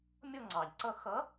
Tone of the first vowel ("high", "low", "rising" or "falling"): falling